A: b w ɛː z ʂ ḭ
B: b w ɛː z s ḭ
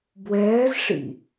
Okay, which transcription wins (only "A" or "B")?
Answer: A